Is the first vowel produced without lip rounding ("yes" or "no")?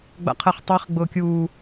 yes